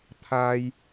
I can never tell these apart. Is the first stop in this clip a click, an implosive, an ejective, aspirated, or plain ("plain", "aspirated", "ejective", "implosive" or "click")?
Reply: aspirated